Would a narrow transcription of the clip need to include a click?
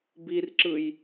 yes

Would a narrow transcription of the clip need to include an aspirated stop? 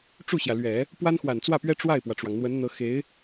no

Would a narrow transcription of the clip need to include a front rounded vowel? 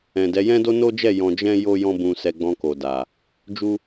no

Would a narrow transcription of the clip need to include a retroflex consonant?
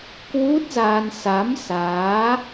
no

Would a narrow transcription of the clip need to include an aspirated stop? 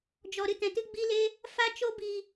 no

